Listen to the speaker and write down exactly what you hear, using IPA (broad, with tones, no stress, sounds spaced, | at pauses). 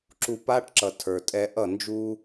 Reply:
ǁ u˨ p a˧ ʈ ǁ ʌ˨ tʰ ə˞˨ tʼ ɛ˧ ʔ ʌ˦˨ n d͡ʒ u˦